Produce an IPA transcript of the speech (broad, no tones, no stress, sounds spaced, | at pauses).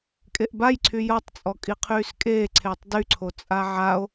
kʼ e ʔ b a j ǀʰ y j ɔ tˤ t͡sʼ ɔ kʼ i qʰ yː s kʼ eː ǀʰ eː tˤ d y ǀʰ o t͡sʼ a ʕ a o̯